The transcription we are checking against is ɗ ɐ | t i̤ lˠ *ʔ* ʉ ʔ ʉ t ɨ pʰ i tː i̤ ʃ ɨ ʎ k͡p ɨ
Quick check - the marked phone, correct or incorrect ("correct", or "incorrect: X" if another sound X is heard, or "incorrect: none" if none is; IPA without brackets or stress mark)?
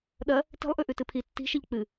correct